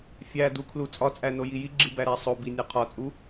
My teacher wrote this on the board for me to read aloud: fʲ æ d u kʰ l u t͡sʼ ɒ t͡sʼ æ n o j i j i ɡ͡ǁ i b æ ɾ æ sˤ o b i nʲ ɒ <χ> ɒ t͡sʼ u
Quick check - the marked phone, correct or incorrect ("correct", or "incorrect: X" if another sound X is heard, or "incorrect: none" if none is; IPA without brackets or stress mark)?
incorrect: qʰ